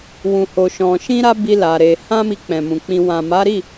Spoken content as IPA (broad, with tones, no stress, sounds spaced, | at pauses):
w ũ˧ h o˧ ʃ ɔ̃˧ ʃ ĩ˦ ɾ a˦ b i˦ l a˧ ɾ e˧ h ã˦ m i˧ k͡p ɛ̃˨ m ũ˨ k͡p ĩ˧ w ã˨ m a˨˦ ɾ i˦˨